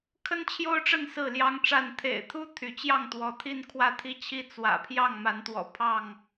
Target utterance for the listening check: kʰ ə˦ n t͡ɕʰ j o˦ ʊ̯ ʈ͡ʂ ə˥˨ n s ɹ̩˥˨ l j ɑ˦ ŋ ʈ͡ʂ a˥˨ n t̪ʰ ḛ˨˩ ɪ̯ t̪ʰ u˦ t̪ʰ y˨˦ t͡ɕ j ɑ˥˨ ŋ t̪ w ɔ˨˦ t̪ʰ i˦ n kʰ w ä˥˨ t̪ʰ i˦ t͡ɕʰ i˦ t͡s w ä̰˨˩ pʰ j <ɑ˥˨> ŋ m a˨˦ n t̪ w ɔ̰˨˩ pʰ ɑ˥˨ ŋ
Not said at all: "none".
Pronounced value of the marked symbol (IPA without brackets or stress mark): ɑ˥˨